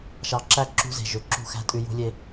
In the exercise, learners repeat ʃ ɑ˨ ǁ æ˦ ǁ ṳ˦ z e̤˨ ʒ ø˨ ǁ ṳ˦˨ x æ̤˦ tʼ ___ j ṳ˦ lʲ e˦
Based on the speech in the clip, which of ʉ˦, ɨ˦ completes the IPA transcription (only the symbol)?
ʉ˦